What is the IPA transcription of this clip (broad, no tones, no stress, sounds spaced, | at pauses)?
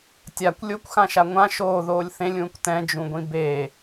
tʲ a kʷ lʲ o kʷ x ã ʃ a ŋʷ ã ʃ oː ð oː lʲ θ ẽ lʲ ũː kʷ t ɛ̃ d͡ʒ ũ ɡʷ ĩ b e